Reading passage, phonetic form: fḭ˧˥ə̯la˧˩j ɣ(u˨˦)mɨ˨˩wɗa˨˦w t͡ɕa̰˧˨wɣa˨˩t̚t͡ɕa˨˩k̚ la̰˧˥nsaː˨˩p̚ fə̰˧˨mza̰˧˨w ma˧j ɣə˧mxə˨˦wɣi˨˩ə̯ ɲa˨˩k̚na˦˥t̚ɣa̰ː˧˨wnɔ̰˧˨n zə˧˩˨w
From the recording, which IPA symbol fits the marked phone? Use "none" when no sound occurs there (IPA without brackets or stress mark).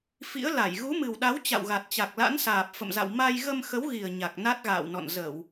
u˨˦